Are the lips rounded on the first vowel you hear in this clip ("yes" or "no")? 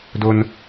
yes